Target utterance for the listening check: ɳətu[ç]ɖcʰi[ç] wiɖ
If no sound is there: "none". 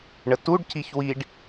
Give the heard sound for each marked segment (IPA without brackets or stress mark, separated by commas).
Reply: none, ç